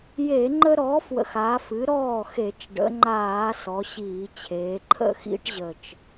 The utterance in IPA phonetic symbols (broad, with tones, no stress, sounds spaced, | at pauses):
j e˧˩˧ ŋ͡ǃ ə˦ ɾ ɔ˩˥ f w ə̰˨˩ x a˩˧ f ɨ˩˥ ɾ ɔː˥˩ x e˧˩˧ t͡ʃ ɖ ə̰˩˧ ŋ͡ǃ aː˧˩˧ s ɔ˩˧ ɕ iː˧˩˧ t͡ɕʰ eː˩˧ ǃʰ ə̰˥˩ x ḭ˦ ʈ ʑ ə˨˩ t͡ʃ